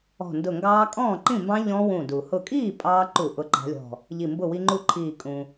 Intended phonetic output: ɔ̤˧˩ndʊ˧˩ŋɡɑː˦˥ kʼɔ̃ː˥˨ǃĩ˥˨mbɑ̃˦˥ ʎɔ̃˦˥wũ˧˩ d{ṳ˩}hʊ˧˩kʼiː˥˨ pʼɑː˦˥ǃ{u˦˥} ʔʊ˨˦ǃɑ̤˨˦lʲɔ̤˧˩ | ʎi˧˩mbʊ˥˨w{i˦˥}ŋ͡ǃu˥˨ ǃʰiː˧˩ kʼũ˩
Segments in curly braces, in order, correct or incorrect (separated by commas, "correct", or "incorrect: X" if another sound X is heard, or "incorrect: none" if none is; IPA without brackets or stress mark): incorrect: u˩, incorrect: u˧˩˧, correct